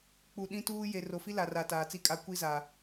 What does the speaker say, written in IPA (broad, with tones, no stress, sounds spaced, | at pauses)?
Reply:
k͡p u˨ ɗ ĩ˦ t uː˦ j e˨ r o˨ f i˦ l a˨ r a˨ t aː˨ t͡s i˦ kʼ a˦ kʷ i˦ z a˨